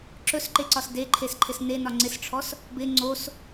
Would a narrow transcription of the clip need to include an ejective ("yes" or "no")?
no